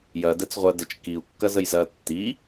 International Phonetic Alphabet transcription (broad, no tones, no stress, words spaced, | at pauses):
jɐ dɛt͡sʁʷɐ dət͡ʃ kiu̯ kːɐzəjzɐ tːi